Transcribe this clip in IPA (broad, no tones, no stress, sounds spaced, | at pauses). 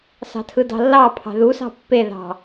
s ɑ̤ tʰ ɯ d ɑ̤ lː ɑ pʰ ɑ̤ ð u s ɑ̤ pː e ð ɑ̤